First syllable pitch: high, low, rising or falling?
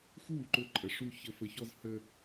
falling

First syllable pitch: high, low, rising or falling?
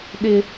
high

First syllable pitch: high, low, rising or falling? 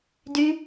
high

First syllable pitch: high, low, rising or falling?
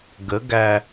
rising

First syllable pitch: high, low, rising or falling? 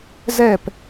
falling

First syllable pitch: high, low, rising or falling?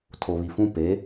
low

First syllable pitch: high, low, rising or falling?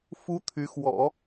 high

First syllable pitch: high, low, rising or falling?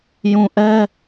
low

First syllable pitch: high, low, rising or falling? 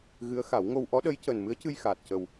rising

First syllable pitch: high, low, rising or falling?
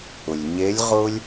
low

